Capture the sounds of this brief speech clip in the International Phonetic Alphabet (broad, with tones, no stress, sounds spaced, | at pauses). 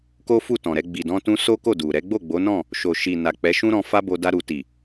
k o˦ f u˦˨ t ɔ̃˨ ɾ ɛ˧ ɡ͡b i˨ d ɔ̃˧ t ũ˧ s o˦ k o˦˨ d u˨ ɾ ɛ˨˦ ɡ͡b o˦˨ ɡ͡b o˨˦ n ɔ̃˦˨ | ʃ o˨ ʃ i˨ n a˨ k͡p ɛ˨˦ ʃ ũ˦ ɾ ɔ̃˧ f a˧ b o˧ d a˧ ɾ u˨ t i˨